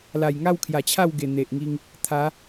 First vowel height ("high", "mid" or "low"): low